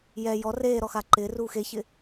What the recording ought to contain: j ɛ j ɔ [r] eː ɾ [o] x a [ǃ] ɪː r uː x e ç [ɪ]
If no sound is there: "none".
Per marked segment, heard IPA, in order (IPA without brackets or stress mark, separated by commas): r, ɔ, ǃ, ɪ